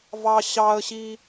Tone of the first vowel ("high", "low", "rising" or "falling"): high